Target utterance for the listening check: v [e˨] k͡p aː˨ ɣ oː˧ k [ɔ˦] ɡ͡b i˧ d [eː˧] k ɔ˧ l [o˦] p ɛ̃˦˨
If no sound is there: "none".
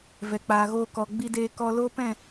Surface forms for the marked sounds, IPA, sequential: ɛ˨, ɔ˨, eː˧, o˦

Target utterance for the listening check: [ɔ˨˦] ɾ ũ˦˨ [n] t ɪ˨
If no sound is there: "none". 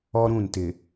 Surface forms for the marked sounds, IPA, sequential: ɔ˦, n

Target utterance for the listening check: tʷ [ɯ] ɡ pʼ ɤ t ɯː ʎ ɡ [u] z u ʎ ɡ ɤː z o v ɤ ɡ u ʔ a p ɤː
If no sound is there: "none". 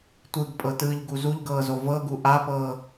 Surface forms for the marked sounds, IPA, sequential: ɯ, u

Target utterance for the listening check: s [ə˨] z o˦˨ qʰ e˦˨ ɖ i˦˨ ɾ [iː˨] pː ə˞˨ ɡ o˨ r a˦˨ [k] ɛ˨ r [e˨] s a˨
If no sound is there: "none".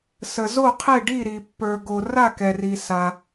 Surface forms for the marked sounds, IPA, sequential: ə˨, i˨, k, i˨

